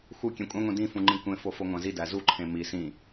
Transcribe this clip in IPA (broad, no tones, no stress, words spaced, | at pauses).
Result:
xu kʲẽkʷʼæ̃ŋʷẽ dĩfũŋ͡ǃĩ kʷẽ fofoŋʷæ̃zi dæzuǃʰẽ mi sĩ